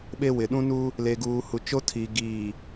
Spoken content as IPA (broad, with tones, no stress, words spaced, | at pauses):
ɓe˦wɪ˨ ɗũ˦nuː˦ | le˨ɡuː˨ hu˨t͡ʃo˦tʰiː˨ ɡiː˨